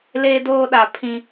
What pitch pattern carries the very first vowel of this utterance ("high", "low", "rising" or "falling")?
high